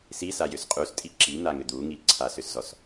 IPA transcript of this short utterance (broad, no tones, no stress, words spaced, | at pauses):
sisajʏs qʼustʼi ǁin̪aŋʏ d̪uŋi ǀʰasʏszɔs